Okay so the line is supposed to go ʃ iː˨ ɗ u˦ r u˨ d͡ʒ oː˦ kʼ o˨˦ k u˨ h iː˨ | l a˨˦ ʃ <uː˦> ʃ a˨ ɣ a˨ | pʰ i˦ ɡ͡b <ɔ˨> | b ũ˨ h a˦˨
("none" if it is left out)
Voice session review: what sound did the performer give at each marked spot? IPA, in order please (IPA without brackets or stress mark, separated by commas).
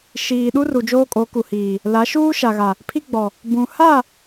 uː˦, ɔ˨